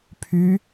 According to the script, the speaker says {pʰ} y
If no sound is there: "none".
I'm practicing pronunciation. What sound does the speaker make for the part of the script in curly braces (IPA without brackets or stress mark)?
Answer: pʰ